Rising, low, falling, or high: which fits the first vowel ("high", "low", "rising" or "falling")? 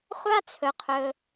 high